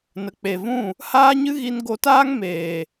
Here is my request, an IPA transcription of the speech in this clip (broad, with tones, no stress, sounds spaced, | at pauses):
n ə˨ k͡p e˨ v ũ˦˨ | h aː˦ ɲ ɨ˦ ɣ i˧ n ɡ o˧ t aː˦ ŋ m eː˨